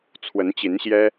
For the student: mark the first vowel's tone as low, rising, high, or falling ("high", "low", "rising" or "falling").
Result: rising